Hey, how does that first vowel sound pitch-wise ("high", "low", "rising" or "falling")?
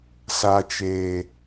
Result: low